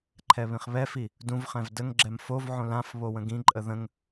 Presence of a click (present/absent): present